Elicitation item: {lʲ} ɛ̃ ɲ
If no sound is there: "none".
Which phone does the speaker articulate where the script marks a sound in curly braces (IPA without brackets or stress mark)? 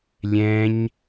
lʲ